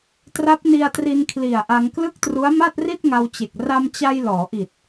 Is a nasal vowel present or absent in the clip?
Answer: absent